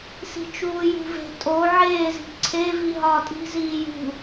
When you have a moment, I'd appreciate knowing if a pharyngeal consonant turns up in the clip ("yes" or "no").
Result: yes